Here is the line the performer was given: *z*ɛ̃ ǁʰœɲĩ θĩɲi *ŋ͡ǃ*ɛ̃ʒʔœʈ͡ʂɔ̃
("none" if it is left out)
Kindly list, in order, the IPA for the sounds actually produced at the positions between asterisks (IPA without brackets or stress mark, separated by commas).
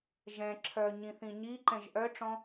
ʒ, ǃ